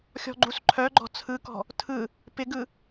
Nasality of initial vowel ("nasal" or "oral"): oral